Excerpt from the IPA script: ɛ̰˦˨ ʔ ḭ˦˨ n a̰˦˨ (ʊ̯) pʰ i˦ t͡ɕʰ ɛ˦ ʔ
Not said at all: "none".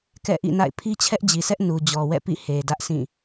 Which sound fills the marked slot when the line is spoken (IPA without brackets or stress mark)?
ɪ̯